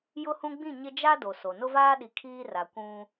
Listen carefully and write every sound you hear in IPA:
jʊ˦hũ˦ ɡ͡bĩ˦˨ ɲɪ˦ d͡ʒa˦ do˨so˨ nʊ˦vaː˦ɗi˨ kʰiː˦ra˨ kʷũ˦

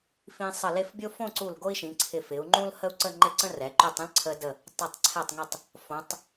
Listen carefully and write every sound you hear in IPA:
fĩ˧ sˤə˧˩le˥˧fbʲo˥ fõ˥˧ǀu˧˩l ɡo˥i̯ʃĩ˩˧ǀʰɪ˧˩ fɪ˩˧u̯ŋ͡ǃũ˥l hə˥u̯ǀə˥˧ŋ͡ǃɪ˥˧ǀə̃˥ rɛ˩˧ǃy˥˧tˤ ə̃˥lǀʰə˧də˧˩ | tˤə˧˩tˤ ǀʰɛ˧˩tˤŋe˧˩tˤ | fõ˩˧tˤ

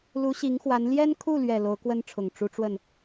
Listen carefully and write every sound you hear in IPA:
lu˧˥ɕi˧˥ŋxwa˧˥n ljɛ˥nkʰu˥˩lɥɛ˨˩ lo˧˥ʊ̯kwə˥nʈ͡ʂʰʊ˨˩ŋ ʈ͡ʂu˧˥ʈ͡ʂwə˥˩n

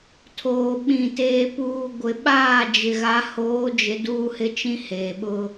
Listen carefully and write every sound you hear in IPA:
tʰoː˨ɓĩ˨ teː˨puː˨ ɡʷɪ˨ɓaː˦˨d͡ʒɪ˨ ɣa˨˦hoː˨˦d͡ʒɪ˨ duː˦hɪ˦t͡ʃĩ˦ heː˨ɓʊ˦

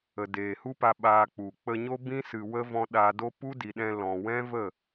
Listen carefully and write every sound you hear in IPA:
ə˨ deː˨hu˦pa˧ ɓaː˧k͡pu˨ k͡pə˧ɲo˦ bĩ˦sɨ˨wə˦vɔ̃˧ ɗa˧do˦ pu˦di˨ɗɛ̃˧ lɔ̃˨wɛ̃˦və˦˨

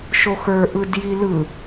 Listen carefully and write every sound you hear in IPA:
ʃoxə˞ ʔɯdjilɯ

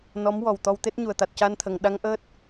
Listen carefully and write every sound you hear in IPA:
nɔ˧˥m wɔ˨˩w t̪ɔ˧wt̪e˦˥t̚ɲu˨˩ə̯ t̪a˨˩t̚ca˧nt̪ʰə˨˩˨ŋ ɗa˧˥ŋʔəː˦˥t̚

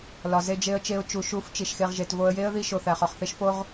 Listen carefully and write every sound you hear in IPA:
lɒ˨ze˧d͡ʒe˧ə̯t͡ʃe˧ʊ̯ t͡ʃu˨ʃu˨˦f t͡ʃi˨ʃxe˧ʁ ʒe˨tvo˧ə̯ je˦ə̯ ði˧ʃo˨ θæ˨χɒ˨χθe˦ʃ fo˦ʁ

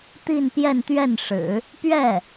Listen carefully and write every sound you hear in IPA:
t̪i˥˧npjɛ˥˧nt̪ɥɛ˥˩nʂɻ̩˨˩˦ | pɥɛ˥˩

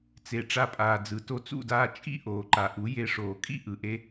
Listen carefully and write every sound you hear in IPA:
t͡se˨ ʈ͡ʂa˧pʼaː˨d͡zɯ˨ to˧t͡sṵ˦˨daː˧ t͡ʃʼḭ˦ ʔoː˨ǃa˨ ʔu˨˦ je˧ ʂoː˨kʼḭ˦ ʔɯ˨ʔe˧

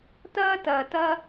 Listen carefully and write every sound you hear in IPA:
tɐː˦tɐː˨ tɐ˦

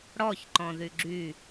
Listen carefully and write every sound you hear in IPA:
ɽɔç ǃɔ̃ðyɡ͡ǁy

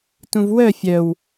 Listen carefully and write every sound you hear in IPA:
tũvwœ fʲœw

